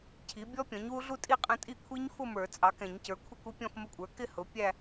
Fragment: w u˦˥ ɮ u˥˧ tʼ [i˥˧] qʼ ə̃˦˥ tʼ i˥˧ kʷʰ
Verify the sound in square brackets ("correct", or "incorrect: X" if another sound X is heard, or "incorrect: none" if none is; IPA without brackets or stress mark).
correct